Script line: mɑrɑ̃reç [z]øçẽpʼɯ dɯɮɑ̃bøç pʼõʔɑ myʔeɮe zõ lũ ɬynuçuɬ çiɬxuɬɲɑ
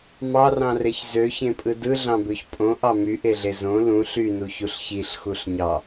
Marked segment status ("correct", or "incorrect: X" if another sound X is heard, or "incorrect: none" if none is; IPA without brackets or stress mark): correct